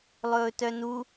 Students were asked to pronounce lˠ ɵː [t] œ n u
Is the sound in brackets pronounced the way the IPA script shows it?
yes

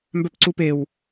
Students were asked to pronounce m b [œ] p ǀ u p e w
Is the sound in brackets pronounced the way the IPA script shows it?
yes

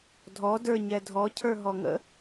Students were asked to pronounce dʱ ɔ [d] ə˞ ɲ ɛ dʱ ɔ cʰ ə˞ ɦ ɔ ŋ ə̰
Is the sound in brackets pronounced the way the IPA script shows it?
yes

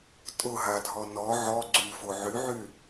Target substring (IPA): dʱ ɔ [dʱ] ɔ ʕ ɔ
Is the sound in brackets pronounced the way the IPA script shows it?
no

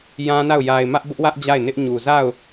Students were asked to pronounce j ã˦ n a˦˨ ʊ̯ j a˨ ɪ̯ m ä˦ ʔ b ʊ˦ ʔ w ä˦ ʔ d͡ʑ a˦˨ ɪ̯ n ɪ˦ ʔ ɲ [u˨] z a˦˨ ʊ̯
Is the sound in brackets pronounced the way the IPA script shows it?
yes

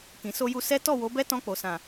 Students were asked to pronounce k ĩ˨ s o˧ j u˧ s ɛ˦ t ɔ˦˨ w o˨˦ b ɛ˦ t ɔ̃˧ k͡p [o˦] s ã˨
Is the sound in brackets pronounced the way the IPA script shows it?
no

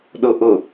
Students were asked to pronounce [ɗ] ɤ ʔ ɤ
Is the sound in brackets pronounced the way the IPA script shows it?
yes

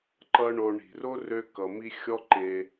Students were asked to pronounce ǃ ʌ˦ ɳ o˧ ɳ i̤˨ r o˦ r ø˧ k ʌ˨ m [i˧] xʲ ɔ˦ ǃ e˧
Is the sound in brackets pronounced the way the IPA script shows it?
yes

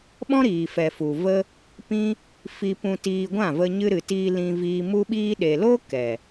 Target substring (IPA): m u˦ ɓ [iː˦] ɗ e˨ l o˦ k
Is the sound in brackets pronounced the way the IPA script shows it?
yes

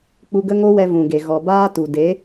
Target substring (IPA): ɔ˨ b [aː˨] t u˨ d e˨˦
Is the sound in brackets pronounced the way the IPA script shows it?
no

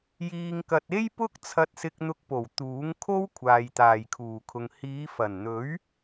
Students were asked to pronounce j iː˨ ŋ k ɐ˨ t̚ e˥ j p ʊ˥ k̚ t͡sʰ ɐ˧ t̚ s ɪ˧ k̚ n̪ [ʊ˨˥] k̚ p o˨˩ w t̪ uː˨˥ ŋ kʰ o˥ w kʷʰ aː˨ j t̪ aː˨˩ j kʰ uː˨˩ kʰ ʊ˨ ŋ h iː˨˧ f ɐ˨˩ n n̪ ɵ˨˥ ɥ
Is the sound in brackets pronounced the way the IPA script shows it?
no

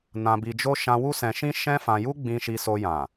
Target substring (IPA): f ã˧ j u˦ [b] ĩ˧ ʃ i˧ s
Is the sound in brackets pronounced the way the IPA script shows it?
no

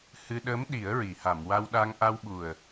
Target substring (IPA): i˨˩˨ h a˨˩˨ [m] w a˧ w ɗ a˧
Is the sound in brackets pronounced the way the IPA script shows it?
yes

